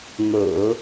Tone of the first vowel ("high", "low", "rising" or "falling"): low